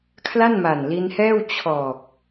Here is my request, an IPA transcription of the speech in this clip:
kʰ l a˥˩ n m a˨˩ n l i˧ n h ɛː˥˩ w t͡ɕʰ ɔː˨˩ k̚

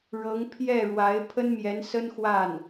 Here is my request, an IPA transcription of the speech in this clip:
ɻ ɤ˧˥ ŋ pʰ j ɛ˥˩ ɻ w a˧˥ ɪ̯ pʰ ə˥ n m j ɛ˧˥ n s ə˥ n x w a˥˩ n

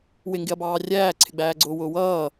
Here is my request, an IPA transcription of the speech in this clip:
w ɪ ŋ ɡ ɪ ɐ̯ b ɑː rʲ æː ǀʰ ɪ ɡ͡b æː ɡ͡ǀ ʊː w ʊː w ʌː

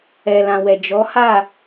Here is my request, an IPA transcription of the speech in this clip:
ɛ˨ l ã˨ w ɛ˨ d͡ʒ ɔ˨˦ h a˦˨

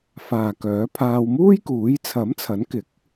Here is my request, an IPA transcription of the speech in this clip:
f aː˨ k œː˨˥ pʰ aː˧ w m uː˥ j k uː˨˥ j t͡sʰ ɐ˨˥ m t͡sʰ ɐ˨˥ n k ɪ˨˥ k̚

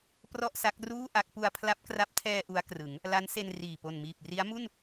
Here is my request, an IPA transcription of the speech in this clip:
p r ɔ˥˩ ʔ s a˦˥ k̚ r uː˥˩ ʔ a˦˥ k̚ p u˧ a̯ pʰ l a˦˥ p̚ k r a˦˥ p̚ tʰ ɛː˧ ʔ u˦˥ a̯ k r ɯ˩˦ ŋ | l a˦˥ n s e˧ n r iː˨˩ p o˨˩ n m iː˨˩ p̚ r i˦˥ a̯ m u˥˩ n

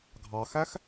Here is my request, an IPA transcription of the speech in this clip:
ɡʱ ɑ x æ x

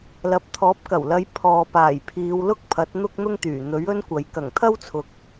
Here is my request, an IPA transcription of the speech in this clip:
l ɐ˨ p̚ t̪ʰ ɔː˨˥ p̚ k ɐ˨˩ w l ɐ˨˧ j pʰ ɔː˨ p aː˨˩ j pʰ iː˨˧ w l ʊ˥ k̚ pʰ ɐ˨˥ t̚ n̪ ʊ˥ k̚ n̪ ʊ˥ ŋ t̪ yː˨˩ n̪ ɵ˨˥ ɥ ɵ˥ n kʷ ɐ˨ j k ɐ˨˩ ŋ t̪ʰ ɐ˥ w t͡sʰ ʊ˨ k̚

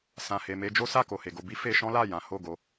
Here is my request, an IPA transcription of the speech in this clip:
s ã˨ h e˨ m e˧ d͡ʒ o˦ s a˦˨ k o˨ h e˨ ɡ o˧ b i˦ f e˧ ʃ ɔ̃˦ l a˦˨ j ã˨˦ h o˦˨ ɡ o˨˦

